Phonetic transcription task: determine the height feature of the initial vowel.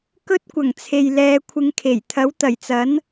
mid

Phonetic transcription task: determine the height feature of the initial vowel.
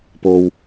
mid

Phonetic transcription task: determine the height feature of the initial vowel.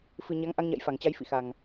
high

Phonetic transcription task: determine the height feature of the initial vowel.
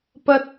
low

